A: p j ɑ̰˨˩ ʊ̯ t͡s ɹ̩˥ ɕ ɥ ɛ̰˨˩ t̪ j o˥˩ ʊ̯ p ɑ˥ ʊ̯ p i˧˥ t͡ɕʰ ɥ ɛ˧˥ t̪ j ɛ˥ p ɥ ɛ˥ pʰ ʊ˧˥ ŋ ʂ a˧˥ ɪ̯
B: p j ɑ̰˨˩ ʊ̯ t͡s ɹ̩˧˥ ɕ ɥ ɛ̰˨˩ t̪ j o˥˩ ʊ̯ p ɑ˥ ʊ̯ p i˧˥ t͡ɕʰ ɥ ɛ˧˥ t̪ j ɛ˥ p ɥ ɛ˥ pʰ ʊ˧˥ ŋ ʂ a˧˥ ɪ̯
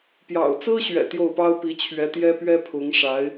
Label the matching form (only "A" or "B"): A